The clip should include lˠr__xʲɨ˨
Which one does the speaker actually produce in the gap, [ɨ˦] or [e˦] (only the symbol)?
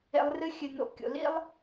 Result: ɨ˦